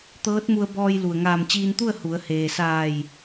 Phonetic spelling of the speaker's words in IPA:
t̪ ɤː˧˥ t̚ m u˧ ə̯ b ɔː˧ j l u˩ ə̯ ŋ aː˧˩ m t͡ɕ iː˧ n t̪ u˥˨ ə̯ h u˩˧ ə̯ h eː˩ s aː˧˩ j

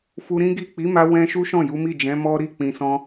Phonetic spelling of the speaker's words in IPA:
f u˧ ɾ ĩ˦ ɡ i˦˨ k͡p i˨˦ m a˧ w ɛ̃˦ ʃ u˦ ʃ ɔ̃˦˨ j u˨˦ m i˦˨ d͡ʒ ɛ̃˨˦ m ɔ˦ ɾ i˦˨ k͡p ĩ˨ s ɔ̃˧

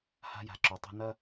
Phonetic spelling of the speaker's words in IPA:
h a̤˦ j a̤˨ ǁ o˨˦ tˤ o̤˦ n ɐ˦

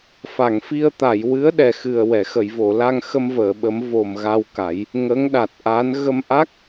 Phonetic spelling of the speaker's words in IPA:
f a˨˩˨ ŋ f i˧ ə̯ t̪ a˨˩˨ j w ɨ˧˥ ə̯ ɗ ɛ˨˩ x ɨ˨˩ ə̯ w ɛ˨˩˨ x ə˨˩˨ j v o˨˩˨ l a˧ ŋ x ə˧ m v əː˨˩˨ ɓ ə˨˩˦ m v o˨˩ m ɣ a˧ w k a˨˩˦ j | ŋ ə˧˥ ŋ ɗ a˨˩ t̚ ʔ a˧˥ n ɣ ə˧ m ʔ a˦˥ k̚

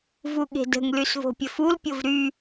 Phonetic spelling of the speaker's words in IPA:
v u ɠ e̤ d ə̤ ŋ l y s v o̤ pʲ ə f u l pʲ o v ɾ y

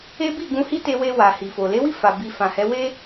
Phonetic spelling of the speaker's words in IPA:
e˦ b i˦˨ ɡ ũ˧ h i˦ t e˧ w e˧ w a˨ h i˨ f o˨ l e˨˦ w i˦˨ f a˨ b i˨ f ã˨ h ɛ˨˦ w e˦

